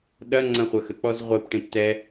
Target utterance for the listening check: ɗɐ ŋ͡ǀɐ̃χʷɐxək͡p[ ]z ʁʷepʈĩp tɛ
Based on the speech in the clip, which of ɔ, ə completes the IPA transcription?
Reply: ɔ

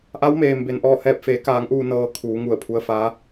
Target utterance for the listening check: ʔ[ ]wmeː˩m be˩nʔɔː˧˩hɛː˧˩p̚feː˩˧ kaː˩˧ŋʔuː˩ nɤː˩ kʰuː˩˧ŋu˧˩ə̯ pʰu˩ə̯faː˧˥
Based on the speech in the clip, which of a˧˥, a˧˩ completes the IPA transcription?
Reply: a˧˥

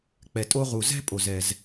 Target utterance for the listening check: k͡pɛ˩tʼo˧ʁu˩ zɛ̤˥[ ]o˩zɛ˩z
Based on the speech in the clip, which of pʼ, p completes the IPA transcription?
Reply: pʼ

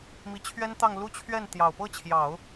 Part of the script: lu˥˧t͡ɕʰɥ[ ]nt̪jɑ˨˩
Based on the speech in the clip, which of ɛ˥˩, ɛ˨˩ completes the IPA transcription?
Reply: ɛ˥˩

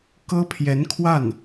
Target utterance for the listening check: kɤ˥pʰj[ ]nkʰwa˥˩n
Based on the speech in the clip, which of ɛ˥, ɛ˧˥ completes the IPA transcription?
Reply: ɛ˧˥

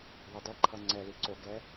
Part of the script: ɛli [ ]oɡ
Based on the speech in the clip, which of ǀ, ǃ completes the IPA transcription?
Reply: ǀ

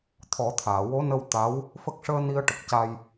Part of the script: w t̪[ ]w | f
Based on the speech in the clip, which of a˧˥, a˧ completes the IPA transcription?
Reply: a˧˥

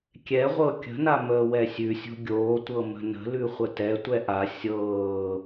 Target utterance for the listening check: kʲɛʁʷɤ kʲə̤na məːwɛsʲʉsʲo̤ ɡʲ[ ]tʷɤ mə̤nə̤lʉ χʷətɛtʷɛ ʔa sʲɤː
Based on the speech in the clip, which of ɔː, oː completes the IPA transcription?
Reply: oː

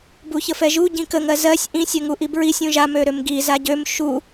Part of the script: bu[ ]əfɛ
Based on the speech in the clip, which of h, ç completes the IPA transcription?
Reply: ç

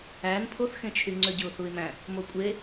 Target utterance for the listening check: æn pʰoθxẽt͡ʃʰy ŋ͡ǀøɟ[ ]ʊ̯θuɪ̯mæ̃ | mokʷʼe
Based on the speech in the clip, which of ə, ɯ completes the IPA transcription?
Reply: ɯ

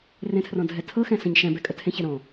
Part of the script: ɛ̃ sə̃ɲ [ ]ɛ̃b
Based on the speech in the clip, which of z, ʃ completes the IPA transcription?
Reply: ʃ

